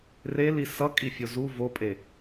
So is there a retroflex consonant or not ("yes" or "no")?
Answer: no